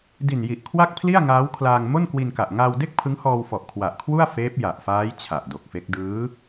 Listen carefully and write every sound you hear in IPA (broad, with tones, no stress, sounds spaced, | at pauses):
d i˨˩ n j i˨˩ ʔ kʰ w a˥˩ k̚ pʰ l i˥˩ a̯ ŋ aː˦˥ w kʰ l aː˧ ŋ m o˥˩ n k w i˧ n k a˨˩ ʔ ŋ aː˧ w d e˥˩ k̚ pʰ ɯ˦˥ ŋ h ɔː˧ w f ɔ˨˩ ʔ kʰ w a˨˩ ʔ kʰ w u˥˩ a̯ f eː˦˥ p̚ j a˨˩ ʔ f aː˦˥ j t͡ɕʰ a˨˩ ʔ d o˨˩ k̚ f e˦˥ k̚ d ɯː˦˥